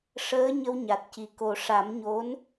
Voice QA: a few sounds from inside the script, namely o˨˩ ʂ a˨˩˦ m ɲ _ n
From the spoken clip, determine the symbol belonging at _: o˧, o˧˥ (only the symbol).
o˧˥